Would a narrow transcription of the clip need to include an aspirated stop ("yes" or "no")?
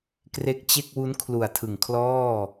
yes